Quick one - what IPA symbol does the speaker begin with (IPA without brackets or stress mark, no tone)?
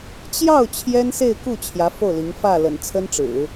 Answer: t͡ɕ